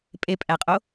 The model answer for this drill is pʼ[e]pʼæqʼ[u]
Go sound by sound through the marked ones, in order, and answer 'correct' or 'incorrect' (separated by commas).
correct, incorrect